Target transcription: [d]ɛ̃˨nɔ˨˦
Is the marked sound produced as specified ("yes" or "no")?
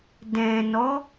yes